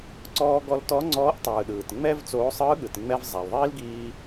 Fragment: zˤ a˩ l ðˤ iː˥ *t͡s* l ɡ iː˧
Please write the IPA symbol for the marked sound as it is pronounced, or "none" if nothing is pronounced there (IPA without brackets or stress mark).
none